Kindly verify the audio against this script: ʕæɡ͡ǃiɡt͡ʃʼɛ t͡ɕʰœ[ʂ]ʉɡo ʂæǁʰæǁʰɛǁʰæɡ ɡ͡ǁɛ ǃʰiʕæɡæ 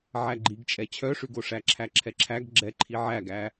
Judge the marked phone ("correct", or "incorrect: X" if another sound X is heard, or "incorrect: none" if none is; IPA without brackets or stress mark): correct